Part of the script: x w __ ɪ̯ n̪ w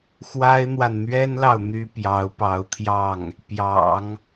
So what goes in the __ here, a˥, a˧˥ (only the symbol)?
a˥